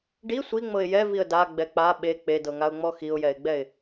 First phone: ɖ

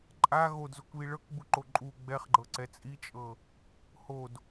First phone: ǃʼ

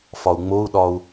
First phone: f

